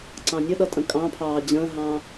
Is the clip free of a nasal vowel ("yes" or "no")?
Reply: no